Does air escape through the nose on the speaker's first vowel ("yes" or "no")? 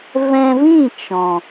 yes